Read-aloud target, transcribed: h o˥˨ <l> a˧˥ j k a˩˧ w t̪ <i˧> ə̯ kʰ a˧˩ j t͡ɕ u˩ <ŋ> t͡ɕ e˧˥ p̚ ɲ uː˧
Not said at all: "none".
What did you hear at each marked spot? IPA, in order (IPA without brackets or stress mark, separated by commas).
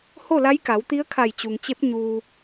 l, i˧˥, ŋ